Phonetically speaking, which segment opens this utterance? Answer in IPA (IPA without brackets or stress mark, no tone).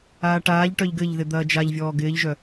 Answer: aː